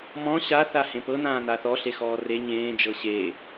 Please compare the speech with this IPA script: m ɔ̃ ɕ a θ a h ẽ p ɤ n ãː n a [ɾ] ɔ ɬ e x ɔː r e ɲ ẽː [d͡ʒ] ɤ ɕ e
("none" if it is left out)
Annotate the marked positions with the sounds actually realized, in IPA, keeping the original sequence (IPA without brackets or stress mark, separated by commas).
θ, d͡ʒ